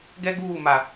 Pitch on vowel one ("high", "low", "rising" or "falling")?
high